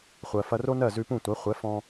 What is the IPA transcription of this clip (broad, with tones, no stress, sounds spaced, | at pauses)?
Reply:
χʷ ɜ˩ f ɐ˧ r o˥ n ɜ˥˩ z ʉ˧ p ũ˥˩ tʷ æ˩˥ χʷ ɛ˩˥ f ɔ̃˧